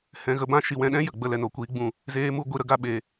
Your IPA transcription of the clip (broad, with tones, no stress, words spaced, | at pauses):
hɛ̃˧ ɣə˧bã˦ ʃi˦ wɛ̃˧ɗɛ̃˦ jə˨ɡ͡bə˧ lɛ˨no˨kʷiː˧ ɡ͡bũ˦˨ | zeː˦mu˦ ɡʷi˧ ɾə˦ɡa˦ ɓe˧